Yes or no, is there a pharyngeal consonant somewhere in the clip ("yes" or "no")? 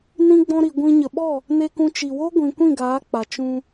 no